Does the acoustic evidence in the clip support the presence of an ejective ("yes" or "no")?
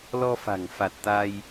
no